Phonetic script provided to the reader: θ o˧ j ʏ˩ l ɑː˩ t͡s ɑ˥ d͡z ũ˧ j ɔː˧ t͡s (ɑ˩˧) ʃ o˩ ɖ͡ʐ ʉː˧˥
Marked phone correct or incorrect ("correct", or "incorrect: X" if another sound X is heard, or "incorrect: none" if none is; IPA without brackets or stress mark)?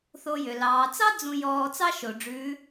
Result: incorrect: ɑ˥